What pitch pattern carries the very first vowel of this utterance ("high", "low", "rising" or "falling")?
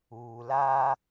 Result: low